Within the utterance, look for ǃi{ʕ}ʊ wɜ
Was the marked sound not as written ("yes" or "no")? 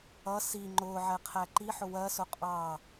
yes